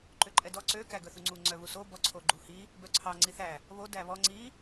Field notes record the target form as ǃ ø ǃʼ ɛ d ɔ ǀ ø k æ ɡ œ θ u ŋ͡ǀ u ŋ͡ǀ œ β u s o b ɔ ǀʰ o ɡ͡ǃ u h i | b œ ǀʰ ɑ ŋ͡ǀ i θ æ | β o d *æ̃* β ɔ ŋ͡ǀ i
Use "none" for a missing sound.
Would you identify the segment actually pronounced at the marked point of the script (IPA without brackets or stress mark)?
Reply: æ